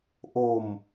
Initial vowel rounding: rounded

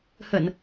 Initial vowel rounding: unrounded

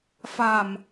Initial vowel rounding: unrounded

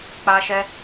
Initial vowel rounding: unrounded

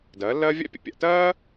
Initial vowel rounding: unrounded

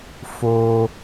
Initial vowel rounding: rounded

